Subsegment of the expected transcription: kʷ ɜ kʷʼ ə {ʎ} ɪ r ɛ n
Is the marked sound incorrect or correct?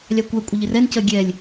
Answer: correct